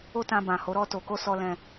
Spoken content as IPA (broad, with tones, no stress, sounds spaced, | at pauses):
o˦ t ã˧ b ã˨ h o˨˦ ɾ ɔ˧ t o˨ k o˧ s ɔ˧ l ɛ̃˧